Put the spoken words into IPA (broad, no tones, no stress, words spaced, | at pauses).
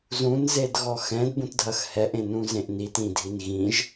zũnzedɣɔ xɛ̃dbũtdʱɐx hɛʔẽnũzẽʔ nitĩdʱin ɣĩʒ